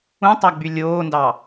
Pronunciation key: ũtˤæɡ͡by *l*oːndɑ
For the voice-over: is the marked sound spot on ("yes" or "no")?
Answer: no